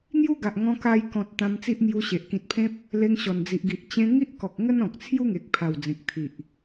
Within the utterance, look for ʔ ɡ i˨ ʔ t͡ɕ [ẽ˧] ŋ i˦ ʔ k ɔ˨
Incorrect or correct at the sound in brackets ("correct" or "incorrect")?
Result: correct